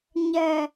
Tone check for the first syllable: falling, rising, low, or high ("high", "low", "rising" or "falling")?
low